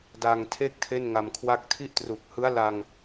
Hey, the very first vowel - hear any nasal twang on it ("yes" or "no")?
no